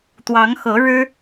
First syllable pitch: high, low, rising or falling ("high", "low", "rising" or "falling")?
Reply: rising